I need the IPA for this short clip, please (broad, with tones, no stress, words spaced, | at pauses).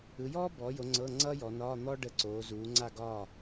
ɯ˨˦jɔː˥bɔ˨˦jo˨˦ ŋ͡ǀɤ˧˥˧ŋ͡ǀʌ˥jɔ˨˦nɒː˧˥˧ n̪ɔ˥ɖə˧˥˧ ǀoː˨˦zuː˨˦ŋ͡ǀa˥˨ɡɒː˥˨